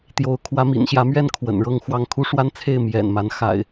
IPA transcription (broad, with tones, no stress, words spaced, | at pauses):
t̪jo˨˦ʊ̯ kʰwä˨˦mḭ˨˩nɕjä˨˦mɥɛ˥˨n kʰwə̰˨˩nɻɤ˥˨ŋxwɑ˥˨ŋ kʰu˦ʂwa˦nt͡sʰe˥˨ɪ̯ mjɛ̰˨˩nma˨˦n xa̰˨˩ɪ̯